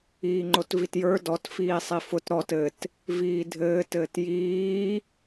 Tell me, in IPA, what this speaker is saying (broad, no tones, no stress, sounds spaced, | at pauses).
iː ŋ͡ǃ o t v i t j ə˞ d ɔ t f iː sˤ i f ʊ t ɾ ɔ t ɘ t | v iː dʱ ɘː t ɘː t j iː